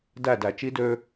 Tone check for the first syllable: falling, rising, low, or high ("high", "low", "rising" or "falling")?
falling